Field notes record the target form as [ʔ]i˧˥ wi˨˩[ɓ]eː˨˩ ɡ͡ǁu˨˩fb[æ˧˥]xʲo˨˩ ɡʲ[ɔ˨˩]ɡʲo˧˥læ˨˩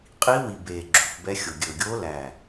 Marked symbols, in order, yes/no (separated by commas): no, no, no, no